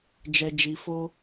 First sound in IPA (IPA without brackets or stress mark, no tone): d͡ʒ